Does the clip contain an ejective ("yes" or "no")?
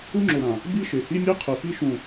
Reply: no